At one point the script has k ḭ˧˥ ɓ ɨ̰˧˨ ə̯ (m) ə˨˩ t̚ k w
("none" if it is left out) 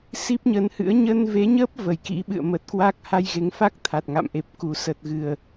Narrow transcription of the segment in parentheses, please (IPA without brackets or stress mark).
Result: m